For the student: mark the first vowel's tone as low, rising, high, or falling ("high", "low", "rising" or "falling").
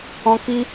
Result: high